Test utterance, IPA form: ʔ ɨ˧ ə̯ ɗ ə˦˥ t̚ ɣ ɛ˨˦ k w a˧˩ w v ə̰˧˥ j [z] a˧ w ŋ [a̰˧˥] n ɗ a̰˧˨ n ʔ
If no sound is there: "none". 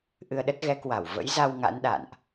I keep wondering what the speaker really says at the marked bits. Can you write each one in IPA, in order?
z, a̰˧˥

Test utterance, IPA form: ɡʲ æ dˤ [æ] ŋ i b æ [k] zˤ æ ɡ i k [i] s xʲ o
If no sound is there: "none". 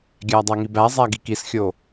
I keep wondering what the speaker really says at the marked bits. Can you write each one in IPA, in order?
æ, none, i

